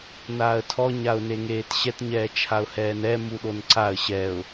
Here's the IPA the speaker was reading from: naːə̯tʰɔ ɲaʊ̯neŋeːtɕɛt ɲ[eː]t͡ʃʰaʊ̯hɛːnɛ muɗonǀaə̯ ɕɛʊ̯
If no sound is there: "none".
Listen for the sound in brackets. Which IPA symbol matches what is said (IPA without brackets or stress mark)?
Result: ɛː